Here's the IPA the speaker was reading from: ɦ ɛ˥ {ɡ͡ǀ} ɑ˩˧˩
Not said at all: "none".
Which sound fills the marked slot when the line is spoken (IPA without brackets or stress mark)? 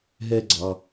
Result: ɡ͡ǀ